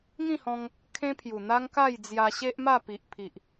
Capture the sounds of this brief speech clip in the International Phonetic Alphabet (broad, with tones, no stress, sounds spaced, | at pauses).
ŋ ĩ˥˧ h ɔ̃˧ ŋ | kʰ ẽ˦ pʰ j u˨˩ n̪ a˦ ŋ k a˥˧ j d͡z j a˧ ɕ e˦ ʔ m a˥˧ p i˨ ʔ pʰ i˨ ʔ